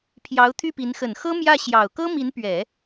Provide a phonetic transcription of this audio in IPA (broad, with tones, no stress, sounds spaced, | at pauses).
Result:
pʰ j ɑ˧˥ ʊ̯ t̪ʰ y˥˩ p i˧˥ n x ə˨˩ n x ɤ˥ m j ä˥˩ ɕ j ɑ˨˩ ʊ̯ k ɤ˥ m i˧˥ n p ɥ ɛ˨˩˦